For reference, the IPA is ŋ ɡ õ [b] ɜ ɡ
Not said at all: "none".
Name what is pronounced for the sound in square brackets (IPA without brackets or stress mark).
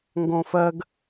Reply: f